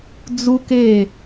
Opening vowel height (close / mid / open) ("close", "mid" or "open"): close